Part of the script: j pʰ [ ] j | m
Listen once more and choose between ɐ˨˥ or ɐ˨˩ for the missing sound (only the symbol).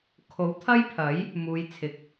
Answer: ɐ˨˥